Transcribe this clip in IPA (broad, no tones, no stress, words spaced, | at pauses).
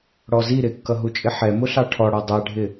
ɽɔzi ɾɪkːʌɦut͡ʃʼɪ ħɛ mʊɬɑʈʰɔɽɒ dˤæɖʱɪ